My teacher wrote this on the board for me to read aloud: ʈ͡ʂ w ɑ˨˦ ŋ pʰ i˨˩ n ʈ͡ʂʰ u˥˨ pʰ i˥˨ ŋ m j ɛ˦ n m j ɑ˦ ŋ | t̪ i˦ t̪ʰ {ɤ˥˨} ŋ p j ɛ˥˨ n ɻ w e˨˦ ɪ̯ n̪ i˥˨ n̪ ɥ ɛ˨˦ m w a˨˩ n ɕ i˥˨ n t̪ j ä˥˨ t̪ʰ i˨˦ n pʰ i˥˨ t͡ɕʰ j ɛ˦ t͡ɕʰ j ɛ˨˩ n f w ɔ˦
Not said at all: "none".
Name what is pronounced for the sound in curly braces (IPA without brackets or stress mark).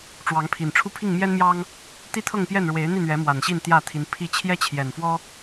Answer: ɤ˥˨